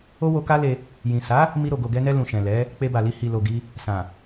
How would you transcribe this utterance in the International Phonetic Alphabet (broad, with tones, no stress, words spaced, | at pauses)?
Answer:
o˦wo˧ka˦le˧ | jĩ˨sa˨˦ | mi˧ɾo˨ ɡo˨ɡɛ˧nɛ˧ lũ˨ʃɛ̃˨ lɛ˨˦ | k͡pe˧ba˨li˧ hi˨lo˨ɡi˧ | sã˨